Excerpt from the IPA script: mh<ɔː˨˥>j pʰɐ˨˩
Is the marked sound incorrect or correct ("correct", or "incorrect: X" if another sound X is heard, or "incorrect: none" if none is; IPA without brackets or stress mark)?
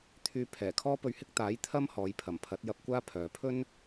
incorrect: ɔː˨˧